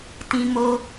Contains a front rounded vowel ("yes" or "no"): no